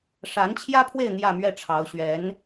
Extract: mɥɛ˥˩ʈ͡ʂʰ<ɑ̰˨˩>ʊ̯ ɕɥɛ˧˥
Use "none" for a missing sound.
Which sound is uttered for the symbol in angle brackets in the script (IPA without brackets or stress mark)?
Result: ɑ˧˥